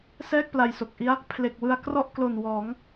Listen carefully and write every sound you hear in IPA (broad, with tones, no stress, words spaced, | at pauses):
sɛː˥˩k̚pla˨˩jso˨˩k̚ʔi˦˥a̯ | pʰle˨˩k̚wɯ˧a̯ krɔ˥˩ʔklo˨˩n wɔː˩˦ŋ